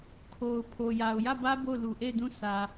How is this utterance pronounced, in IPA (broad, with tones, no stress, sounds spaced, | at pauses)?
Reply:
kʰ o˨ ʊ̯ pʰ o˨ j a˨ ʊ̯ j ä˦˨ b ä˦ b o˦˨ ʊ̯ l u˨ ʔ e˦˨ ɪ̯ d ũ˦˨ sʰ ä˨